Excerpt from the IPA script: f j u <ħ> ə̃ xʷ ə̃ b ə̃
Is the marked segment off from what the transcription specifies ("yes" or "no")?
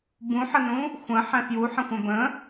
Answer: no